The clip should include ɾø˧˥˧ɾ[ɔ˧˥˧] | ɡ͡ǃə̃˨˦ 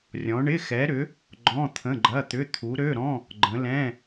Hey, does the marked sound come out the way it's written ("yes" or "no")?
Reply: no